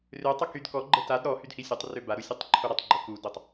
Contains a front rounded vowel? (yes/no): yes